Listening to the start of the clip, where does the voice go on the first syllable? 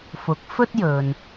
rising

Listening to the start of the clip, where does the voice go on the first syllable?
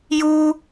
high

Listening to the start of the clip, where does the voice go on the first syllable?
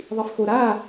low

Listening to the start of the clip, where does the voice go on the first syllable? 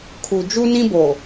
low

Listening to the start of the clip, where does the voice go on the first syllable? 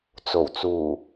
low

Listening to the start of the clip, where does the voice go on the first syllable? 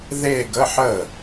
falling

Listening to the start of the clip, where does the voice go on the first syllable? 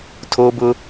high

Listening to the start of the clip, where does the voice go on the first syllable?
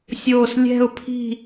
falling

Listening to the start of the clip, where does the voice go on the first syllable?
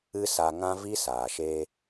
high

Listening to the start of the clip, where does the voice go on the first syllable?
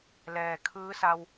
low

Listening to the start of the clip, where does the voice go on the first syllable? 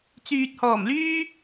low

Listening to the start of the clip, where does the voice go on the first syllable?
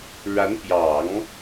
rising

